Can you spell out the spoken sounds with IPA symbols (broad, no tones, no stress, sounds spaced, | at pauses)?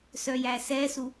s œ j æ s ɛ s u